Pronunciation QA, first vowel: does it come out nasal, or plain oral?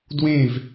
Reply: nasal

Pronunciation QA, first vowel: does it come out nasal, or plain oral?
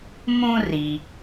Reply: nasal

